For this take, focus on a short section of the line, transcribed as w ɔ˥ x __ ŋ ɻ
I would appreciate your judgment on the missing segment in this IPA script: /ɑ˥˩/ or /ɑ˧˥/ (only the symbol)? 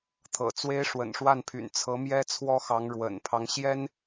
ɑ˧˥